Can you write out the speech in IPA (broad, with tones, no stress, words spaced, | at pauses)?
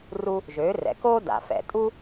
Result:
ru˧ | ʒøː˩˥rɛ̰˩koː˥ da̰˩˧fɛ̰˩tʼu˥